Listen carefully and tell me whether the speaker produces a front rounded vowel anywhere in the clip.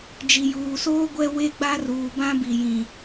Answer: no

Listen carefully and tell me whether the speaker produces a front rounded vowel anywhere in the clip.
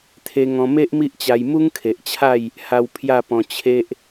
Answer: no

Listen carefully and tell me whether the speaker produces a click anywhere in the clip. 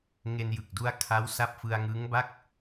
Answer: no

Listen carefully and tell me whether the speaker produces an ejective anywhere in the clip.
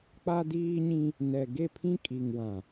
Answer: yes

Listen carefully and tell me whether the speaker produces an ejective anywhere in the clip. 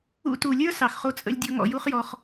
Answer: yes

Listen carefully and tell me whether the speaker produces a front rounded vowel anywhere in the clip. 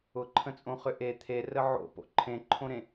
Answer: yes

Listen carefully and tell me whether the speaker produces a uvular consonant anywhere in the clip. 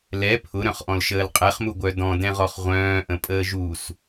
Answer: yes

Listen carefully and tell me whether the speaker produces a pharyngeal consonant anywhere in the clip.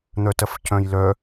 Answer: no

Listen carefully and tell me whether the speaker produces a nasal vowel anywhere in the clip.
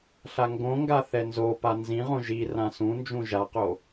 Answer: yes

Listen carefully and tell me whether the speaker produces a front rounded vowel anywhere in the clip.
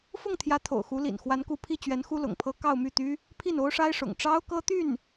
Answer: yes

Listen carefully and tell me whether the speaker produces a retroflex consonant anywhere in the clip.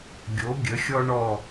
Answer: yes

